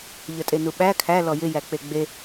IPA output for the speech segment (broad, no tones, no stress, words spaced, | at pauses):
ʎətʼenuɓæ kʰæ lɔjɪjæk͡pe ɡ͡be